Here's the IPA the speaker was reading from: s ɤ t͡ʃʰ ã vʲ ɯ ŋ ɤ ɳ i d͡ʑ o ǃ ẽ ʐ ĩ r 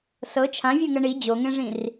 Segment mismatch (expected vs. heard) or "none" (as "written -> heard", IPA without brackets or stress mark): ǃ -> ŋ